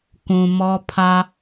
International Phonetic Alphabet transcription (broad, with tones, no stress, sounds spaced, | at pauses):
k ũ˨ m ɔ˦ pʰ a˦